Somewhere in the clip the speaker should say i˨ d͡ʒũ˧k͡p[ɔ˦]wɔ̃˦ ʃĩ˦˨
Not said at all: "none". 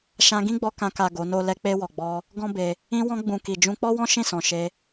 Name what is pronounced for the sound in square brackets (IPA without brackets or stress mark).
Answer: ɔ˦